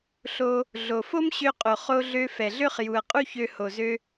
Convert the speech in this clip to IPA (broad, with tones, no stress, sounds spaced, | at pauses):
ɬ o˧ | ɮ o˩ f o˥ m ɕ ø˧ qʼ o˩ χ o˧ ɮ ø˧ f ɛ˩ ɮ ø˥ χ j u˩ ɐ̯ qʼ u˥ ç ø˧ h o˩ z ø˧